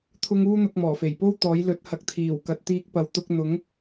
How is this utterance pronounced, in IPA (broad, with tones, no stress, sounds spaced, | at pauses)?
t̪ʰ ʊ˥ ŋ uː˥ n̪ ʊ˧ k̚ m ɔː˨˩ f e˨˩ j p o˥ w t̪ ɔː˨˥ j l ɵ˨˥ t̚ h ɐ˨ k̚ t̪ʰ iː˨˩ w k ɐ˨ t̚ t̪ iː˧ k̚ p ɐ˨˥ w t̪ ʊ˨˥ k̚ n̪ ʊ˨˥ ŋ